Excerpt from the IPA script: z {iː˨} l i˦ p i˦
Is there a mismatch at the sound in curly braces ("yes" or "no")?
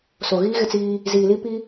no